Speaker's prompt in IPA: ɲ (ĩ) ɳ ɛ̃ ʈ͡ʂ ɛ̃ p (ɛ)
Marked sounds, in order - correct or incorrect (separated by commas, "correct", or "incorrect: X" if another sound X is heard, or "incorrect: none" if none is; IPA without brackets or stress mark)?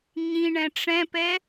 correct, correct